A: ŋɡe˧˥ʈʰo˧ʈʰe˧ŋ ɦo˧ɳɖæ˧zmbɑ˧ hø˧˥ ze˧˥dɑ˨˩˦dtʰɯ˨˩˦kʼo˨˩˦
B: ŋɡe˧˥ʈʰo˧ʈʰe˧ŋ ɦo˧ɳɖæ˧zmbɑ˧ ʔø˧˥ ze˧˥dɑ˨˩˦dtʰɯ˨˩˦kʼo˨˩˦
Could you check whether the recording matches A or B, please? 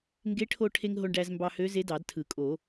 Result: A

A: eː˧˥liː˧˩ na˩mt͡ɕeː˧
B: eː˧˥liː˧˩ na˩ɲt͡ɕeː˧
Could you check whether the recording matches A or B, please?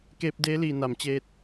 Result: A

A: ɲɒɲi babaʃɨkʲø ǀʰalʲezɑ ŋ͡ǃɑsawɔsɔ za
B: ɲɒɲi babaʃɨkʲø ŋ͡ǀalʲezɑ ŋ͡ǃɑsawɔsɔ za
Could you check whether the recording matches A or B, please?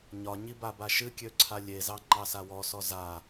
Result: A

